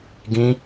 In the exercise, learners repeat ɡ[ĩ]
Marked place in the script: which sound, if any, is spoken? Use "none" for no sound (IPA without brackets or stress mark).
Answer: ĩ